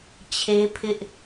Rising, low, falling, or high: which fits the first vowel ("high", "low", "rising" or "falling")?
high